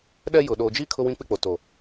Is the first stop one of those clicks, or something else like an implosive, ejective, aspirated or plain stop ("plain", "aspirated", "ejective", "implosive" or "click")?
implosive